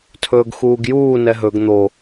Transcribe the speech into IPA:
tʰɵːɡxuːɡjuː nɛɦɵɡ n̪o

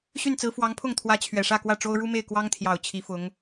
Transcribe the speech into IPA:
ɕy˥˩nt͡sɹ̩˧˥ fwɑ˧˥ŋpʰʊ˥˩ŋt̪ʰwä˧˥ t͡ɕʰɥɛ˨˩ʂä˥˧kwä˥˩ʈ͡ʂo˥ʊ̯ ɻu˥me˥˩ɪ̯ kwɑ˥ŋt̪ʰjɑ˨˩ʊ̯ t͡ɕʰi˧˥fʊ˧˥ŋ

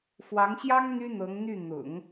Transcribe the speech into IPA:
fwɑ˧˥ŋɕjɑ˥ŋ n̪y˥n̪ɤ˧˥ŋn̪y˥˩ n̪ʊ̰˨˩˦ŋ

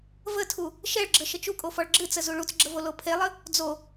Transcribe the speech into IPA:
vətʰu | ʃɛɭɡ͡ǁə ʃət͡ʃukʼo fɔɭɡ͡ǁɨt͡sə zuɭut͡sɡ͡ǁəvo lopʰelˠə | d͡zo

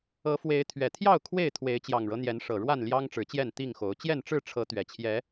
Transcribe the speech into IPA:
ɤ˨˦fwe˨˦ɪ̯ t̪ʰɥɛ˨˩t̪ʰjɑ˥˨ʊ̯ kʰwe˥˨ɪ̯ t̪ʰwe˨˦ɪ̯t͡ɕjɑ˨˩ŋɻɤ˦n̪jɛ˨˦n ʂɤ˨˩ɻwa˥˨nljɑ˦ŋ ʈ͡ʂɻ̩˨˦t͡ɕjɛ˥˨n t̪i˥˨ŋxo˨˦ʊ̯ t͡ɕjɛ˥˨nʈ͡ʂɻ̩˥˨ʈ͡ʂʰɤ˨˦ t̪ɥɛ˨˩t͡ɕʰjɛ˨˦

